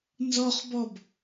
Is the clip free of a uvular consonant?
no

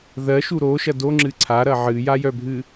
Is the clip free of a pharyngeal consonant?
no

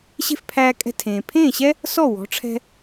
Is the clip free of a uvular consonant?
yes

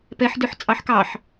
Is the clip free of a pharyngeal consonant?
no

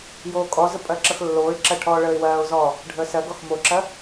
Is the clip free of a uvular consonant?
yes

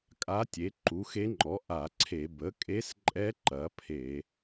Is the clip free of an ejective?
no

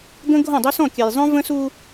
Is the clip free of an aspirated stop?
yes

